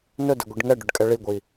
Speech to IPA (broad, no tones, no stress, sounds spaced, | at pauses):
n ɵ d ɘ ɡʷ i ɖ ŋ ɛ ɖ ɵ ɖ kʼ ɛ ɭ i ɡʷ i